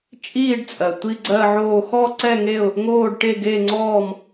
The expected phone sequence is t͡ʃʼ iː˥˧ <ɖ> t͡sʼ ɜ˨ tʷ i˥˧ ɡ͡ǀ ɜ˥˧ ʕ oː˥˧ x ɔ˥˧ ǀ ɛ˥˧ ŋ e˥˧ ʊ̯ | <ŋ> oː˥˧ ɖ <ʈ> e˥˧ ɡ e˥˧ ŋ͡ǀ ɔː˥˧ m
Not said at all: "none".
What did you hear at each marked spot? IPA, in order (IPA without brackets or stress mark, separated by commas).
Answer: ɖ, ŋ, ʈ